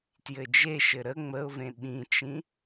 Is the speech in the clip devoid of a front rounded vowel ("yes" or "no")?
yes